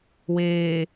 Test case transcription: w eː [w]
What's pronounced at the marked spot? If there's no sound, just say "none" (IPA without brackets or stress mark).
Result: none